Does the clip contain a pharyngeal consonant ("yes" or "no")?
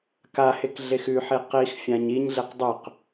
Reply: yes